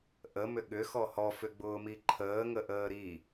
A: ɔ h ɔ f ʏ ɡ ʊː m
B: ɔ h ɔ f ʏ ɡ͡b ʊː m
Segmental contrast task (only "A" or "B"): B